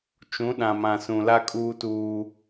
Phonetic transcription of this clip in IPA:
t͡ʃ ũ˨˦ ɗ ã˨ m ã˨ s ũ˨ l a˦ kʼ uː˦ t uː˦

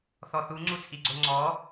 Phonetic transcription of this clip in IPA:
θ ɔ θ u ŋ͡ǀ u t͡sʼ i ɡ͡ǀ o ŋ͡ǀ ɔ

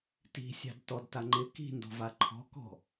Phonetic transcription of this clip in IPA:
t i̤ sʲ ɑ̤ d t ɔ d t a ŋ͡ǃ ɪ k i̤ n d ɔ̤ v a ǃʰ ɔ̤ k ɔ̤

